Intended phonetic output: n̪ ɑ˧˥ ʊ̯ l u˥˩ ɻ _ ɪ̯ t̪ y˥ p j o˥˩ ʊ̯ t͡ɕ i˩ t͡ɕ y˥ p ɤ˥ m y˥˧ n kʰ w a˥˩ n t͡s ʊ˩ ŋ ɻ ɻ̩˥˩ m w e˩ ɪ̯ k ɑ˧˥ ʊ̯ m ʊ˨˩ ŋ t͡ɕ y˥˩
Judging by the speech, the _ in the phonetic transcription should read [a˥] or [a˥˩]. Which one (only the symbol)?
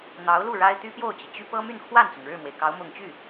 a˥